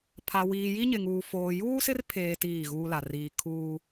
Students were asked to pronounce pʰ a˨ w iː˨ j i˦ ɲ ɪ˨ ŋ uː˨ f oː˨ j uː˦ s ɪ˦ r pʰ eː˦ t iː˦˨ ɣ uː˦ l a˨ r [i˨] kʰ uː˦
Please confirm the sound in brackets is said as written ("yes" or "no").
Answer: no